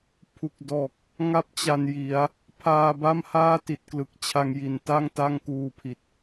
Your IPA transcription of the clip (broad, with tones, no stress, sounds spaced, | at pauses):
pʰ u˨˩ k̚ d ɔː˨˩ k̚ | ŋ a˥˩ p̚ t͡ɕ a˧ n j i˩˦ a̯ | pʰ aː˧ b a˥˩ m h aː˥˩ t i˨˩ t̚ k l ɯ˨˩ k̚ t͡ɕʰ a˧ ŋ j i˨˩ n t a˥˩ ŋ t a˥˩ ŋ k uː˧ pʰ i˨˩ t̚